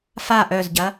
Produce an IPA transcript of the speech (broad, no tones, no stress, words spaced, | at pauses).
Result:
fa ʔœzɟɐ